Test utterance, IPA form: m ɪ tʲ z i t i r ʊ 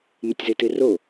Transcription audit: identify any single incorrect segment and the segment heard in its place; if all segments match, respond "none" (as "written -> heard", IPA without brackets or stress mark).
none